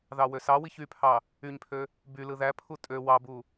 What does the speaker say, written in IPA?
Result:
ðɑwøsɑwiç ypʰɑ | yɲpʰø | by lɯðæpʰu tʼø wɑbu

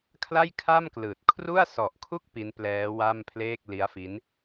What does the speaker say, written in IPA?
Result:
kʰla˥˩jkʰa˥˩m klɯː˨˩t̚ kʰru˥˩a̯sɔ˨˩ʔkʰu˥˩k̚ pi˦˥nplɛː˦˥wa˥˩mpʰleː˥˩k̚ li˦˥a̯fi˦˥n

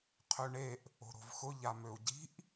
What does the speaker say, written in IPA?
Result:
qʰøɳeʔ | o̤ɾo̤vxʊ ʎamøu̯ɟi̤ʔ

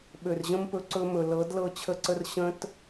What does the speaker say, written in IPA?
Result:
ɓø˨rʑə̃˦mpɵ˧ ǀɵ˧mɵ˨lɤ˨˦d lɤ˦˨t͡ɕʰə˦ǀə˦r ɕə̃˦t

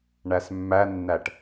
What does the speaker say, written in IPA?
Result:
ɳæsmːænːæʈ

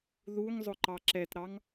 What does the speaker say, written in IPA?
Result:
ðuŋzˤʊ ǃɑǁɛtɾɑŋ

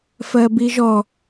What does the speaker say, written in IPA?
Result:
fɜbiʒɔ

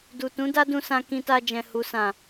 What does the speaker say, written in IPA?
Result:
du˨tũ˨˦ da˦dũ˧sã˧ kĩ˧ta˧d͡ʒɛ̃˨ hu˨sã˨

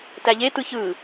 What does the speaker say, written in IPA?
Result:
tæʎetɯ çɯ

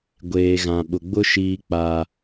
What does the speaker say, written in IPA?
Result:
ɡʷeː˨ɣã˨ ɓʊ˨ɡ͡bʊ˦ ʃiː˦k͡pa˦

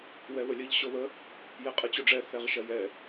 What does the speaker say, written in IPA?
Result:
wɛβəlʲəʎ ɕoβə | jɛqʼɛt͡ɕoɖ͡ʐɛ θɛʁʃɐjɛ

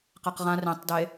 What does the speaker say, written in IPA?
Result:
qaqʁã rẽtˤde

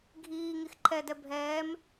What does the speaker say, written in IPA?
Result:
ɡʱiː ŋixǃʰɛdɛ bʱɛːm

